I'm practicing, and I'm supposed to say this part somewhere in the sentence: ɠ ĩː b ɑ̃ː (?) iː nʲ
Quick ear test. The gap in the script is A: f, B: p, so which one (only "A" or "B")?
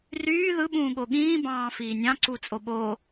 A